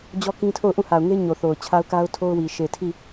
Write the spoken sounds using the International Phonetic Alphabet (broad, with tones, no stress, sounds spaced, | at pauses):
d͡ʑ ɔ˦ k ĩ˦ tʰ o˦˨ ʊ̯ ʔ ũ˦˨ h a˨ ʊ̯ ŋ e˦ ɲ o˨ θ o˨ ʊ̯ t͡ɕʰ a˦ ʊ̯ k a˦ ʊ̯ tʰ o˦ ʊ̯ w i˨ ʃ e˨ tʰ i˦˨